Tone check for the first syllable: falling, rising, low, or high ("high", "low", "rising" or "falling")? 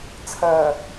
low